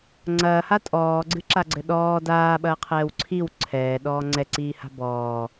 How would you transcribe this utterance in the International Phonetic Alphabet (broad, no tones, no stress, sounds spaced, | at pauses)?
ŋ͡ǀ ɐː h a tʼ ɔː ɡ͡ǀ ɨ ǁ a ɡ͡ǀ ɘ ɗ ɔː d aː ɓ ɐː qʰ ɛː w ǀʰ i w ǀʰ ɛː ɗ ɔː ŋ͡ǀ ɛ ǀ iː h a̤ b ɔː